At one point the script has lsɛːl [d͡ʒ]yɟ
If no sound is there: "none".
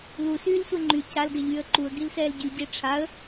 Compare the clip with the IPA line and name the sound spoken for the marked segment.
ɟ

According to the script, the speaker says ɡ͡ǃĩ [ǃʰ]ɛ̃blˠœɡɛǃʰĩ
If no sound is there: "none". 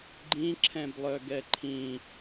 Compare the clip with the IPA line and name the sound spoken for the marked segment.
ǁʰ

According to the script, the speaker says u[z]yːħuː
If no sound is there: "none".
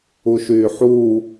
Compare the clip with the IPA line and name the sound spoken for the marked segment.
ʃ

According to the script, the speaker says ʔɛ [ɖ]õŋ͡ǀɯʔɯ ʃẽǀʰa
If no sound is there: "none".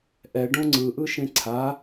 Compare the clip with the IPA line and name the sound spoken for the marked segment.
ɖ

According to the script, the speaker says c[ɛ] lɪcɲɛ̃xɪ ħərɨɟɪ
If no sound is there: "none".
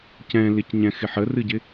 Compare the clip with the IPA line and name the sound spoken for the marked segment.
ɛ̃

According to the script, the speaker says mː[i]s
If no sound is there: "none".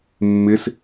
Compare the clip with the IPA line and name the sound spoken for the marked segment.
ɪ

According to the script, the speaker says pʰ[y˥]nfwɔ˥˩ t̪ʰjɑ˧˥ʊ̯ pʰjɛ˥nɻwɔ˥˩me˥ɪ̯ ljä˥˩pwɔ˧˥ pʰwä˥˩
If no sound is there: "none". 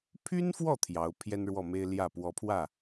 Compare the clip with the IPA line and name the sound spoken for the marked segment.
y˥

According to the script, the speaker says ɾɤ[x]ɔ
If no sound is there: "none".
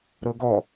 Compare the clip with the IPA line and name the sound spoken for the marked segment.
ɡ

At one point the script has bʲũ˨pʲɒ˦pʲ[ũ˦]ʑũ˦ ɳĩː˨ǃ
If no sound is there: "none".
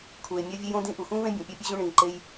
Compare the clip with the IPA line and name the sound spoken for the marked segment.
u˦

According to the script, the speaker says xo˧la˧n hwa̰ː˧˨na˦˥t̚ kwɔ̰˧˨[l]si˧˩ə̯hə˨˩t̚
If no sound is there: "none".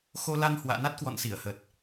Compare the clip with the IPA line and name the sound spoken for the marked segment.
n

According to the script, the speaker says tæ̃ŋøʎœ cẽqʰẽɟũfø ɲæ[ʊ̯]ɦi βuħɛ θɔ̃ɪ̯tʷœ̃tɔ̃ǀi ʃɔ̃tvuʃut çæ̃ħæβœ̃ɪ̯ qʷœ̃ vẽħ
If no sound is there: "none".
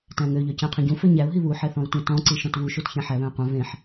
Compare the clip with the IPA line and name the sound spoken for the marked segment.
ʊ̯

